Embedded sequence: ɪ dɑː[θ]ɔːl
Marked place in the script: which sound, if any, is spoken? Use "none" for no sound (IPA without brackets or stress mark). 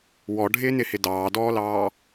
d